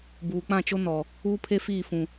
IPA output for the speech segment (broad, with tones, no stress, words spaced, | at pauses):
buː˨k͡pã˦˨t͡ʃo˦nɔ˨ | uː˦pʰe˦ fiː˦˨fũ˨